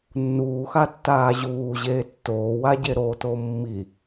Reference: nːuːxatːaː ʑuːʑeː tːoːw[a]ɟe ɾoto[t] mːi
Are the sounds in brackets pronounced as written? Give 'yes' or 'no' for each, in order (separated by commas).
yes, no